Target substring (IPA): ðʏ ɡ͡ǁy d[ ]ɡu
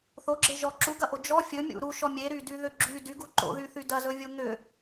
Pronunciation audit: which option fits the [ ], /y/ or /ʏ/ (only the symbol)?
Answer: y